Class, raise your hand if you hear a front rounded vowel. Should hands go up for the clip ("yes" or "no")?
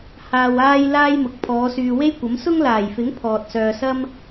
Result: yes